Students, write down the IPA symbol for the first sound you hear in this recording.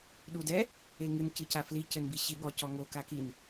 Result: ɗ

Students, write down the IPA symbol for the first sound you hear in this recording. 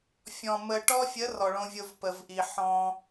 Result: fʲ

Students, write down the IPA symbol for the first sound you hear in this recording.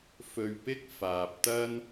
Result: f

